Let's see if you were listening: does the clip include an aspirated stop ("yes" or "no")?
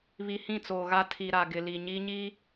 yes